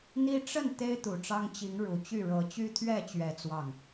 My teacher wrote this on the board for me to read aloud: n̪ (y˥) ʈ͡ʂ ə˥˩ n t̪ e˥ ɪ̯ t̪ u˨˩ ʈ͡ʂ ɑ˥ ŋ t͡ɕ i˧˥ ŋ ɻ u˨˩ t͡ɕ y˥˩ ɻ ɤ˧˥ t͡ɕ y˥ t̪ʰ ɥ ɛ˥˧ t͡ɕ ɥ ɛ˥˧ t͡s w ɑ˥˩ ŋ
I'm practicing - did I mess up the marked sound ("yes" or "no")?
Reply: yes